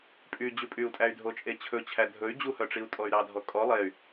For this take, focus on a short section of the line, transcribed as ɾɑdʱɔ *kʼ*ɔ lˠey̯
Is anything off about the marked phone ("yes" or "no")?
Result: no